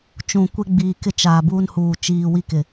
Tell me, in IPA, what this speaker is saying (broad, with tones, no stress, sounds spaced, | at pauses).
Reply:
t͡ʃ ũ˨ kʷ e˦ ɡ͡b iː˨ k ɪ˦ t͡ʃ aː˨ b uː˦ n h uː˨ t͡ʃ iː˨ w i˦ k ɪ˨